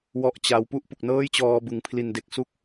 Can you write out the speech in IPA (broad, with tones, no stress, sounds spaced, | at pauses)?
w ɔ˥˩ ʔ t͡ɕ a˦˥ w p u˥˩ ʔ p u˨˩ k̚ n ɤː˥˩ j t͡ɕ ɔː˧ b ɯ˨˩ ŋ pʰ l i˨˩ n d e˨˩ k̚ s u˦˥ k̚